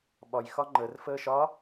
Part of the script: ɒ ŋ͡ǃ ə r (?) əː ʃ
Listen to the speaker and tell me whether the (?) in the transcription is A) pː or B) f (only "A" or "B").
B